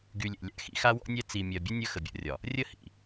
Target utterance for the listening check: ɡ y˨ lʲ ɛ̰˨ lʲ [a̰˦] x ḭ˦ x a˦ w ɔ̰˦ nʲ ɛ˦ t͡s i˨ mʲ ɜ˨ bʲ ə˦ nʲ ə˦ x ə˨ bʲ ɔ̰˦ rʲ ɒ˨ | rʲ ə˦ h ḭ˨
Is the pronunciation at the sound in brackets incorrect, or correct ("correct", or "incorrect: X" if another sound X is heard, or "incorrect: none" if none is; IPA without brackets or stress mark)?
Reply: correct